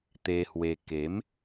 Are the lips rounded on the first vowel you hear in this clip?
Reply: no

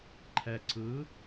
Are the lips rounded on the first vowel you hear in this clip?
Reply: no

